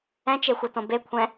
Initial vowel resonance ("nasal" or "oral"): nasal